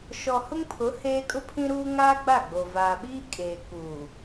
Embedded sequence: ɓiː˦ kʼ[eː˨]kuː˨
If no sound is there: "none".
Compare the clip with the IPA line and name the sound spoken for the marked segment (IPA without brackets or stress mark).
eː˨